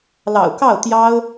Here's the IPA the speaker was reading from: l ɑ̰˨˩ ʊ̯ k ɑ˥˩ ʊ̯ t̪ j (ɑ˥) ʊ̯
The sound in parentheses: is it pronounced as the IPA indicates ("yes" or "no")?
yes